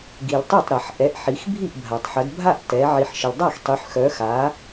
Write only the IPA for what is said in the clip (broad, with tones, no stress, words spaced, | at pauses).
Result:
ɡi˩ltˤœ˥˩tˤ ɾa˩ħʔɛ˩˧ʔ ħi˩˧xbʱi˥˩ʔbʱa˩tˤħə˩˧d bʱa˥˩ʔtɛ˩˧ ʕi˩ħ ʃə˩ldˤa˥˩xtˤy˩˧ħxœ˩˧ xa˩˧